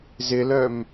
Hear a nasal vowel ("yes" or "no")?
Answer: no